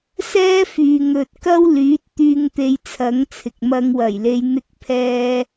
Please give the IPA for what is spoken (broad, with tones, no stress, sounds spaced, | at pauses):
s ɛː˥ f yː˨ ŋ ɵ˨ t̚ k ɐ˥ w l yː˨˥ t̚ t̪ yː˧ ŋ t̪ e˧ j t͡sʰ ɐ˨˥ ŋ t͡sʰ ɪ˨ k̚ m ɐ˧ ŋ w ɐ˨˩ j l e˨˧ j n̪ ɪ˥ k̚ pʰ ɛː˥